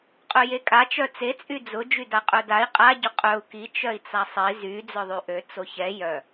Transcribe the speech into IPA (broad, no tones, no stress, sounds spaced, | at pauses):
qʼ œ j e kʼ a t͡ʃ œ t͡s e t͡sʼ y d͡z ʊ d͡ʒ y d a qʼ œ d a i̯ qʼ a ɟ ʊ qʼ œ u̯ k i t͡ʃ œ i̯ t͡s a sˤ i z y d͡z œ ðˤ y ʔ ø t͡s o ç ɛ j œ